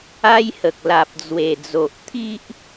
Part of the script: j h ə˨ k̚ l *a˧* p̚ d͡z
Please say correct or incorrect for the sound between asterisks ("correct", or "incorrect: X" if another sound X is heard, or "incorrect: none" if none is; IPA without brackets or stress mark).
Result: incorrect: a˨